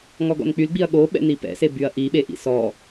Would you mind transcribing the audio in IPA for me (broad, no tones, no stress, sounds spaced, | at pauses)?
ŋ ɔ ɡ ɔ̰ n k͡p y l ɡ͡b i ɐ̯ ɠ o ɓ ɛ̰ n i p ɛ̰ s e b y ɐ̯ ʔ i ɓ e ʔ ḭ s ɔ